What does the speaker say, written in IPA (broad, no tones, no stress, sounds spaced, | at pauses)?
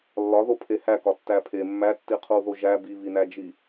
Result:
lː ɒ ð o pʰ e h æ k ɒ tː æ pʰ e mː æ tː i qʰ u ð o ʒ æ b i β i n æ d͡ʒ i